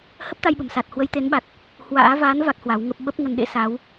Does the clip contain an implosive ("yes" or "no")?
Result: yes